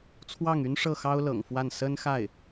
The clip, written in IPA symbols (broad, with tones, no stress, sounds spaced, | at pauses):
t͡sʰ w ɑ˥˩ ŋ y˥ n ʂ ɤ˥˩ x ɑ˥ ʊ̯ l ɤ̰˨˩ ŋ f w a˥˩ n s ə˥ n x a˥˩ ɪ̯